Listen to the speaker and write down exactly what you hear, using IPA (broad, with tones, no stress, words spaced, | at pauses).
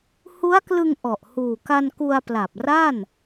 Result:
hu˦˥a̯klɯ˧ŋʔɔ˨˩ʔ huː˨˩ka˧nku˧a̯ pla˨˩p̚ra˥˩n